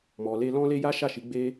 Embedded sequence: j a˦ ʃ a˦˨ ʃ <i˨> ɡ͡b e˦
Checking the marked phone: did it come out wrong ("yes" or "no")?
yes